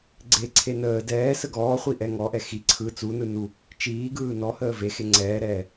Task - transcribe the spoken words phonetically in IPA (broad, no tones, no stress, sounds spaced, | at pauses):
ɡ͡ǀ e ǀʰ e n əː d ɛː s ə ɡ ɔː χʷ i ʔ ɛ ŋ ɔ ʔ ɛ x i ǀʰ ɯ t͡s u n ɯ n u | t͡ʃ iː ɡ ɯː n ɔ h əː v e x e ŋ͡ǀ ɛː ɾ ɛː